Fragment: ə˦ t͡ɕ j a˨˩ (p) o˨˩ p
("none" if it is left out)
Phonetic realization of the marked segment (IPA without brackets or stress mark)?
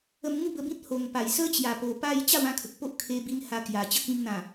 p